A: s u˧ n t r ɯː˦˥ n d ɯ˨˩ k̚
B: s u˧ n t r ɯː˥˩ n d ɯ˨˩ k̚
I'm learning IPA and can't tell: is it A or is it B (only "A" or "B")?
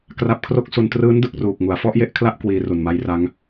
A